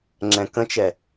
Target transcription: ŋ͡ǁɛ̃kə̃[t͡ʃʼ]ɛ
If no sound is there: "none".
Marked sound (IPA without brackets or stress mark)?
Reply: t͡ʃ